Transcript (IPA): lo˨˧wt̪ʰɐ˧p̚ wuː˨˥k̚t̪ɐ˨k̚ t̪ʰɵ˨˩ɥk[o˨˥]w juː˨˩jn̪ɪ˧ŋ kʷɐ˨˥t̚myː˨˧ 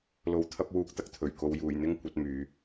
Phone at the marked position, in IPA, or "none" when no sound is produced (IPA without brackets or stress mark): o˨